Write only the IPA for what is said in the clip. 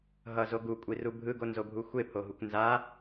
ɦ ʌ z o ɡ u kʷʼ i r u bʱ ɯ ɡ o n z o bʱ u xʷ e pʰ o ɦ u kʷ n z a

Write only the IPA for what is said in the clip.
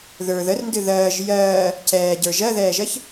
ð ə˞ ð ə r n d ɨ ð ɜː ʒ j ɜː | cʰ ɛː ɟ ə˞ ʒ ɜ ð ɛː ʒ ɜ ç

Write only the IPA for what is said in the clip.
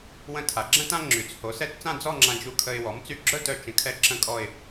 w ə̃˥˧ tʰ a˩˥ ɡ͡ǁ ə̃˥ t ã˥ ŋ͡ǁ y˩˥ t͡s h o˩˥ s ɛ˧˥˧ t t͡s ã˥˧ d͡z ɔ˥˧ ŋ͡ǁ ã˧ d͡ʒ u˧ kʰ ə˧ ɪ̯ w ɔ˩˥ m t͡s y˧ ɡ͡ǁ œ˥˧ t œ˧ t͡ʃ ə̃˧ kʰ ɛ˥ ǁ ə̃˥˧ kʼ ɔ˥˧ ɪ̯

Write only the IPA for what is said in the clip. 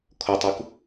kʰ o tˤ u k

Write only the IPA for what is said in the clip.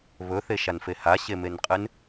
β ɵ θ e ʃ a n f e h a ɕ e m e n qʼ ɨ n

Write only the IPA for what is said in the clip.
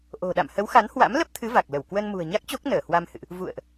ʔ o̤˨˩ ɗ a̰˧˨ m h ə˨˦ w x a˨˦ n h w a̰˧˥ m l ə˦˥ p̚ t̪ʰ ɨ˨˦ v a˨˩ k̚ l ə˧˩ w k w ə˧ n m ṳ˨˩ ə̯ ɲ a˦˥ k̚ t͡ɕ o˦˥ k̚ n əː˧˩ h w a˧ m h ɨ̰˧˨ ʔ | v ṵ˧˨ ə̯ ʔ

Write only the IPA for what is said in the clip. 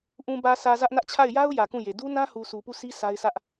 ʔ ũ˨ b ä˨ sʰ ä˨ z ä˦ ʔ n ä˦ ʔ t͡ɕʰ a˦˨ ɪ̯ j a˦ ʊ̯ j ä˨ k ũ˦˨ j e˨ d u˦ n ã˦ h u˨ sʰ u˨ p u˦˨ sʰ i˦ s a˦ ɪ̯ sʰ ä˦ ʔ

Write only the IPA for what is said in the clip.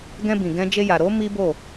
ɡ ɛ̃˧ b ĩ˨ ɡ ɛ̃˧ d͡ʒ e˧ j a˨ ɾ o˨˦ m i˦ b o˦˨

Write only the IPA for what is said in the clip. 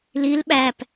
l i l ɓ æ p

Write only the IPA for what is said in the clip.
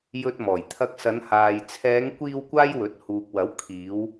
j ɵ˧ t̚ m ɔː˨˩ j t̪ʰ ɐ˧ k̚ s ɐ˨˧ n h aː˨ j t͡sʰ ɛː˨˧ ŋ kʷ iː˧ w kʷ aː˥ j w ɵ˨˥ t̚ h uː˨ k̚ w ɐ˨˥ w kʰ iː˨˧ w

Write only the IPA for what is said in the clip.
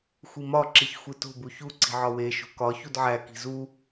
xʷ i m ɒ ǁ i ç xʷ i t o̤ b u ç u ǀ i̤ ʕ ɒ w e ʃ o̤ k ɒ ç u d ʕ æ k i̤ z u

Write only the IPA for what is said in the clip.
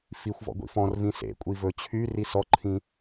f i xʷ v ɔ̰ ɡʷ ḭ f ɔ̃ r v ĩ s ḛ kʷʼ i v ɵ t͡ɕʰ y r i s ɔ ǃʰ ĩ

